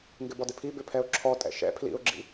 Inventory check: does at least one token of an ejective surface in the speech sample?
yes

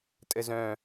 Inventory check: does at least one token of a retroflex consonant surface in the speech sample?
no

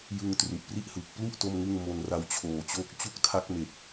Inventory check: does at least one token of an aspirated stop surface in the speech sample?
yes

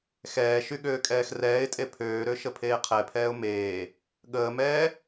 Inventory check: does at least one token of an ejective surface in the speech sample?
yes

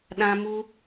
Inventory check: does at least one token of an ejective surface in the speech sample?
no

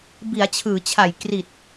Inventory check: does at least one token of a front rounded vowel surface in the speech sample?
no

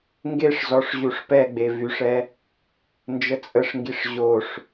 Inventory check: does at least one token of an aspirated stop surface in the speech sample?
no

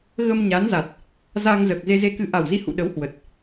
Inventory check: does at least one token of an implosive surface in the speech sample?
yes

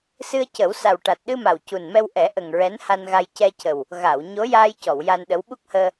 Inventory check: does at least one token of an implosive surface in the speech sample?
yes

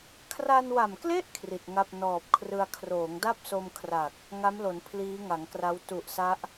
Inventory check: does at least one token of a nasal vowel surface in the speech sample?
no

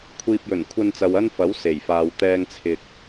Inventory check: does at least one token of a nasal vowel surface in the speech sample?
no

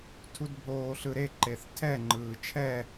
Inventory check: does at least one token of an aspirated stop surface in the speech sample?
yes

